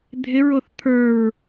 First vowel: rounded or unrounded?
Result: unrounded